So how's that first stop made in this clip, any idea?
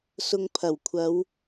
aspirated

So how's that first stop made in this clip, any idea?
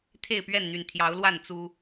aspirated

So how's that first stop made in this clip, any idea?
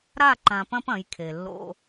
click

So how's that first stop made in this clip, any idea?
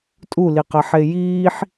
ejective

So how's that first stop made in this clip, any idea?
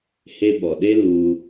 implosive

